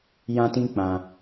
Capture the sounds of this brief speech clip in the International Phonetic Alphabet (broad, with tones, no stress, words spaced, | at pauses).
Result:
jã˦tĩ˦k͡pã˨